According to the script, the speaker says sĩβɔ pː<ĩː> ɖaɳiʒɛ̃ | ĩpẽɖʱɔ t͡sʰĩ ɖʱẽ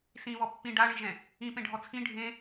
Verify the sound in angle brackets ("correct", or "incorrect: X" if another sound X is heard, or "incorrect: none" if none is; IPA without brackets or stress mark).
incorrect: ĩ